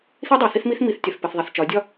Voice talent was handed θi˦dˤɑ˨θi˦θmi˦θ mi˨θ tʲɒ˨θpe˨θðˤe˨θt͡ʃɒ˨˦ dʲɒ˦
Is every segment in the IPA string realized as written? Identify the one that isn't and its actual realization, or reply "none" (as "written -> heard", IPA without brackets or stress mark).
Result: none